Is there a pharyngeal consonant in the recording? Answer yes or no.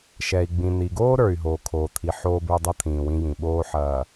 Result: yes